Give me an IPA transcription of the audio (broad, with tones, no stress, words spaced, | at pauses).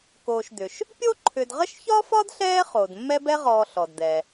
koː˨ʃd̪ʏ˩ʃ | pʲo˥ǃʰʏ˨dʁə˥ʃ çɒ˥fɒ˥dɬɛː˦ χoː˩dmːɛ˦bɛ˦ʁɔː˨ ɬɔ˩dd̪ɛ˩